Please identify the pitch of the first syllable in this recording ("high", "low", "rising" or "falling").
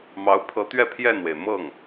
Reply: rising